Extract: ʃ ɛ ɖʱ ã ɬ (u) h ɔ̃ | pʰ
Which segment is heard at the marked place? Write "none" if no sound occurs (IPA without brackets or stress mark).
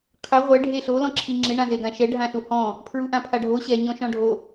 u